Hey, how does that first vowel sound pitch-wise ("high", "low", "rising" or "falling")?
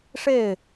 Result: falling